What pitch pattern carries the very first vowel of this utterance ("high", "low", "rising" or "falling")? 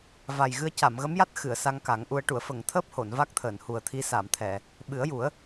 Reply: low